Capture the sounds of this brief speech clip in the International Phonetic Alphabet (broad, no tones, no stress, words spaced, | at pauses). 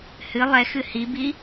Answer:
hɨ lˠɛxɨ hibi